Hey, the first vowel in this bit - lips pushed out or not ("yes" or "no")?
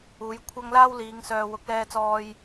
yes